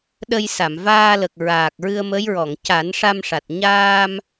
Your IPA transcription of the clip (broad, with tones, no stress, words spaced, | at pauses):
ɗə˧jsa˨˩˨m vaː˧lə˨˩k̚ ɹaː˨˩k̚ɹɨ˧ə̯mə˧˥j ɹɔ˨˩˨ŋca˨˩˦nʂa˧mʂa˨˩t̚ ɲaː˧m